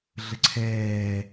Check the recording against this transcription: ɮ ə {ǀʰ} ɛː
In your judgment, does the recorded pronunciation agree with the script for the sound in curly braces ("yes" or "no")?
yes